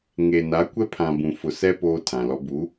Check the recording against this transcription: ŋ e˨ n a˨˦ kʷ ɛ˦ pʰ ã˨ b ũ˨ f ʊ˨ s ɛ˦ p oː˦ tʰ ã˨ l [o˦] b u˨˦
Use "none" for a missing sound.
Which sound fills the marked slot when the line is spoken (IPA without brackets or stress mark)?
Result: ɔ˦